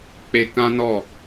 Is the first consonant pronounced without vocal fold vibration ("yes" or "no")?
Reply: yes